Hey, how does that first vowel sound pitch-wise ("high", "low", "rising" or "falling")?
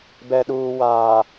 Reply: low